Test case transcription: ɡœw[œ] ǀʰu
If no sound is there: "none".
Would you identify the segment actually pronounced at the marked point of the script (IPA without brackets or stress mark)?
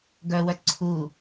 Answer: œ